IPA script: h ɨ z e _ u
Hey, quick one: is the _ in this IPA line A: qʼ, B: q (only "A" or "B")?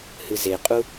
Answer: A